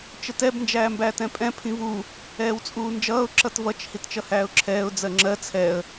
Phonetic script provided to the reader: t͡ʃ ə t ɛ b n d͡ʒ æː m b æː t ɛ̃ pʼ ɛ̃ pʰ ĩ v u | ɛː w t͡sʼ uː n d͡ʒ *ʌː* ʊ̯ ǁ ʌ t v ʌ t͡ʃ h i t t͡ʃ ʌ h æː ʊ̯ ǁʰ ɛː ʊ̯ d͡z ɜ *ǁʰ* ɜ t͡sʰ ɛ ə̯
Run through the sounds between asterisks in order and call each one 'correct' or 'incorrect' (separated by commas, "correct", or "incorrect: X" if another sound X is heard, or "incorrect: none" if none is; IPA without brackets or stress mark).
correct, incorrect: ŋ͡ǁ